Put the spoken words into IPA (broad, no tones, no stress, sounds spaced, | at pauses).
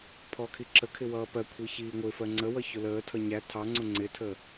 pʰ ɔ kʰ i ǁ ə kʰ ɪ w ʌː p ɜ kʷʰ i ç iː ŋʷ ɪ f ɜ ŋ͡ǀ ə w ʌ ç ʊ l əː tʰ ʌ ɲ æ tʰ ɑ ŋ͡ǀ ʊ ŋ͡ǀ ɪ tʰ ə